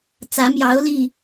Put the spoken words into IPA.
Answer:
t͡s ä˨˦ m j ɑ˨˦ ʊ̯ l i˥˨

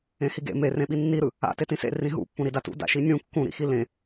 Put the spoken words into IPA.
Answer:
ẽ h i ɡ ḛ m e r ẽ ɓ i nː i ɾ ɯ | a̰ t e t ĩ s ḛ r ĩ ɦ ṵ pː ũ ɾ i d a t ṵ d a̰ ʃ i nʲ ũ kː ũ ɾ ḭ x i l ẽ

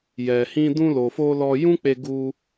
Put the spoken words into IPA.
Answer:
j ɛ˨ h ĩ˧ d ũ˧ l o˨ f o˧ l ɔ˧ j ũ˦ k͡p e˧ ɡ u˧

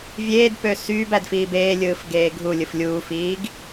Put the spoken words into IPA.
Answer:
vʲ eː d p ø s yː b æ d f iː b eː lʲ ɯː f ɡ eː ɡʱ u lʲ ɯ f lʲ uː f iː ɡ

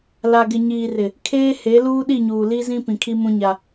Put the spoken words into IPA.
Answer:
l a˨ ɡ ɪ˨ ɲ iː˨ r ɪ˨ | kʰ eː˦ h e˨˦ l uː˦ ɗ i˦˨ ɲ uː˨ l i˦ z ĩ˦ p ĩ˨ kʰ i˦ m ũ˦ ɲ a˦

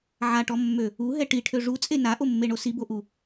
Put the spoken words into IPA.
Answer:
ʕ a ʈ ɔ mː ø | u ɦ ɛ ʈ i ʈʰ ø ʐ u t͡sʼ e n a ʔ o mː e ɳ o s i b o ʔ u

